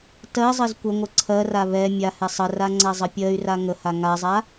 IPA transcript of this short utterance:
t ɜ zˤ ɜ z kʷ ə ŋʷ ə ǀʰ ɜ r a β ɛ mʲ a h ɛ sˤ ə r a ŋ͡ǀ a zˤ ə pʲ ɜ y̯ r a ŋ ə h a ŋ a zˤ a

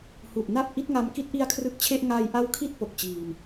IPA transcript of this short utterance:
h u˨˩ ʔ n a˥˩ p̚ ʔ i˦˥ t̚ ŋ a˧ m k i˦˥ t̚ ʔ i˦˥ a̯ kʰ r ɯ˦˥ k̚ t͡ɕʰ e˥˩ ʔ ŋ a˧ j ʔ a˦˥ w kʰ i˦˥ t̚ p o˨˩ k̚ t͡ɕ iː˧ m

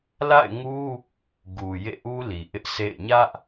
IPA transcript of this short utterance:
l a̰˦˨ ɪ̯ ŋ u˦ | ɡ u˨ j ḛ˦˨ ʔ u˦ l i˨ ʔ ɪ˦ ʔ sʰ ḛ˦˨ ɪ̯ ɲ ä˦ ʔ

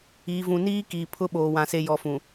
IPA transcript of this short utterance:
iː˨ v ũ˨ n iː˦ k iː˨ pʰ ʊ˦ ɓ oː˨ w ã˨ s e˨ j ɔ˨ f ũ˨

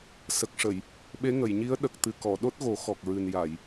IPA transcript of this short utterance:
s ə˨˩ k̚ ʂ ə˨˩˨ j | ɓ e˧˥ ŋ ə˨˩˨ j ɲ i˧˥ ə̯ ɗ ə˨˩ k̚ t̪ ɨ˨˩ k ɔ˨˩˨ ɗ o˦˥ t̚ ɣ o˨˩˦ x ɔ˨˩ k̚ ɹ ɨ˨˩ n j a˨˩˨ j

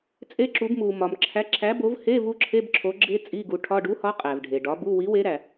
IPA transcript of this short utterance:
t͡sʼ e˦˥ ǁ u˨˥ b m u˨ m ɒ˨ m ǁʰ æ˨˥ ǁʰ æ˨˥ b o˨˥ v h e˧˥˧ v u˦˥ ǁʰ e˧˥˧ b ǁʰ o˨˥ ɡ͡ǁ e˧˥˧ t͡sʼ i˧˥˧ ɡ u˨˥ ʈʰ ɒ˧˥˧ ɖ u˨˥ h ɒ˨˥ qʼ æ˨ v ɖʱ e˨ ɖ ɒ˨˥ b u˧˥˧ w i˨˥ w e˨˥ ɾ æ˨

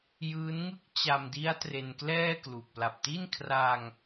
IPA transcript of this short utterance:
j ɯː˦˥ n ŋ ɯ˥˩ k̚ t͡ɕ a˧ m d i˦˥ a̯ t r e˧ n k l ɛː˥˩ k l u˨˩ k̚ p l a˨˩ p̚ t i˥˩ n kʰ r a˧ ŋ

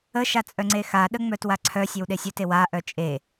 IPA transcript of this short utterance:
ə ʃ a t͡sʼ œ ŋ͡ǀ e x a ɗ ə ŋ͡m œ t w a ǀʰ œ sʲ e w ɗ e sʲ œ t e w a ʔ œ t͡ʃʼ e

